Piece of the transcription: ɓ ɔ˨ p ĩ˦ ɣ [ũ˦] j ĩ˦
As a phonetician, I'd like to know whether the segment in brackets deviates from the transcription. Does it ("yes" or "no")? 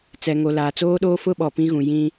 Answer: yes